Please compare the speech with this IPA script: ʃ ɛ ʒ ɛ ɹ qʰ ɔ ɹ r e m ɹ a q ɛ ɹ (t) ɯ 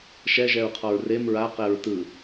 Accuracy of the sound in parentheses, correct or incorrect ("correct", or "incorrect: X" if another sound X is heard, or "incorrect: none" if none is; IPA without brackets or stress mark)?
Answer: correct